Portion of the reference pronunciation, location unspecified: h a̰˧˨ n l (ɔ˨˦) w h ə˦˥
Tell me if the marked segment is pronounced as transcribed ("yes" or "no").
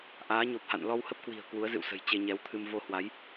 no